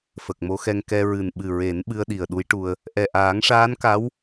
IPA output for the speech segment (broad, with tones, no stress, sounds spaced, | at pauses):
f ə˨˩ k̚ m o˧˥ x ɛ˧ ŋ k ɛ˧ ɹ ɨ˨˩ n ɓ ɨ˨˩ ɹ e˨˩˦ n ɓ ɨ˧ ə̯ ɗ i˨˩ ə̯ ɗ u˧˥ j ʈ u˧ ə̯ | ʔ ɛ˨˩ ʔ aː˨˩˦ ŋ ʂ aː˧˥ n k a˧˥ w